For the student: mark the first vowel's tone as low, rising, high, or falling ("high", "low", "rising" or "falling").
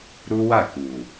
high